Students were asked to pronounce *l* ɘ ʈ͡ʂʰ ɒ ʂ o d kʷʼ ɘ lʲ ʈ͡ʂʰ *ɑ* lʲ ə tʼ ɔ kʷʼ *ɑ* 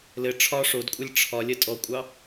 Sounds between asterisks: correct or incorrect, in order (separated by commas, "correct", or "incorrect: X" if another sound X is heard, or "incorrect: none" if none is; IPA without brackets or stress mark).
correct, incorrect: ɒ, correct